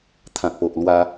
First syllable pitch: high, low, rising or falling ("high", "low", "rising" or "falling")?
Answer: low